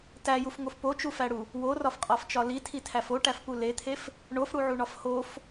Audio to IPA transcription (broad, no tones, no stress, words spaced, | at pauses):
tæjufŋof pot͡ʃufæɽu | worɒfqʼɒft͡ʃɒ litʰitʰæf oʈæfpu let̪ʰef | ɳofɽuʕuɳɒf hof